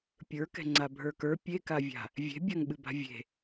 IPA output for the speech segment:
pʲ ə˞ k ɛ̤ ŋ͡ǀ a bʱ ə˞ k ə˞ pʲ e k a vʲ a̤ | vʲ e̤ bʲ a ŋ ɓ ɨ b a̤ vʲ e̤

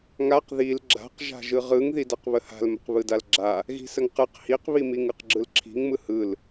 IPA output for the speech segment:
ŋ a q ð i l ɡ͡ǁ a̤ q ʒ a̤ ʒ ɯ ʁ ɯ ŋ ð i d a q β ə h a̤ l m ə̤ q β ɯ d a l ɡ͡ǁ a | ɣ i̤ s ə ŋ q ɯ q h i q β i m i ŋ ɯ q ɡ͡ǁ ɯ l ǁʰ i̤ ŋ m ɯ h ɯ l

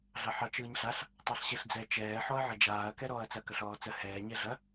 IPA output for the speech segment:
ɮ ɑ ħ ɑ t͡ʃ ɯː ɲ ɬ a ɬ | tˤ ɑ ɬ ɕ e ɬ d͡z ɛ t͡ʃ ɛː ħ ɔ ɐ̯ ʕ ɐ d͡ʒ aː ɐ̯ k ɛ ɾ ɔː ɐ̯ t͡s ɐ k ɐ ɬ ɔː t͡s ə h ɛː ɲ ɛ ɮ ɐ

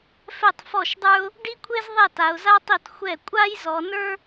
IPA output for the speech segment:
f ɛ˥˩ tˤ f ɔ˥˩ ʃ dˤ ə˞˥ ʊ̯ | ɖ i˥ kʷʰ e˥ z ðˤ ɛ˥˩ t a˨˦ ʊ̯ z a˥ tˤ i˥˩ t xʷ ɛ˥˩ kʷʼ a˥ j z ɔ˨˦ n ə˞˥

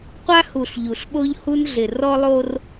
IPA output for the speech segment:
qʷ a˦ h u˨ ɬ ʎ u˨ ɬ ɓ o˦ ʎ h u˦ n ɮ ɪ˨ r ɔ˦ lˠ o˦ r

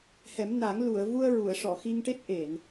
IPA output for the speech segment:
h ɛ˨˩˦ m n a˨˩˦ ŋ l u˨˩˨ ə̯ v u˧ ə̯ ɹ u˨˩˨ ə̯ ʂ ɔ˨˩˨ x i˧ ŋ ʈ e˦˥ t̚ ʔ e˨˩˨ n

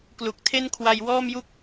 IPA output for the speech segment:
k l u˨˩ k̚ tʰ e˥˩ n kʰ w a˧ j w ɔː˥˩ m j u˥˩ k̚

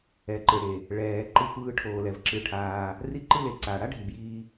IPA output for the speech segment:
ɛ˩ ǃ ɯ˩ ɽ e˩ | ɭ ɛː˩ ǃ ɯ˨ sʷ ɯː˨ ʈʰ oː˩ l ɛ˩ v ǁ ɯ˩ ʈʰ aː˩ | r i˦ ǃ ɯ˦ l e˩ ǀ aː˩ ɽ a˥ ɖʱ i˩ b j iː˨

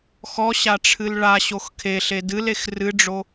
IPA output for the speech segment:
x ɔ ɕ a ʈ͡ʂʰ ɨ l ɭ a ɕ o x kʰ e ɬ e d ɨ l e x r ɨ ɖ͡ʐ o

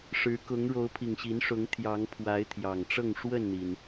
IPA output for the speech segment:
ʂ ɻ̩˨˦ k ʊ˨˦ ŋ ɻ o˨˦ ʊ̯ pʰ i˨˩ ŋ ɕ i˨˦ n ʂ ʊ˨˦ ŋ t̪ʰ j ɑ˨˦ ŋ pʰ w a˨˦ ɪ̯ t̪ʰ j ɑ˨˩ ŋ ʈ͡ʂ ɤ˥˨ ŋ ʂ w ə˥˨ n n̪ i˩ n

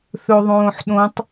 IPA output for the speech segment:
θ ɵ ðˤ õː ħ ɗ õ tˤ

